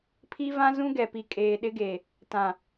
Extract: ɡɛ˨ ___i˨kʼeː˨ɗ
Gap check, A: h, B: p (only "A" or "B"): B